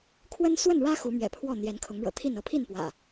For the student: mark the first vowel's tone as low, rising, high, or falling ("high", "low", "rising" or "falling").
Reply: high